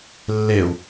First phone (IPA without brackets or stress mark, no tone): lː